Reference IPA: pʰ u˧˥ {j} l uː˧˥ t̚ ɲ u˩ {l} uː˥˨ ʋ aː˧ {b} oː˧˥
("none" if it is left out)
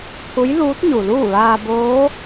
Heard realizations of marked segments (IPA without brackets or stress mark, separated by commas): j, l, b